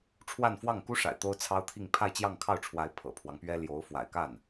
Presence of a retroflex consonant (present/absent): present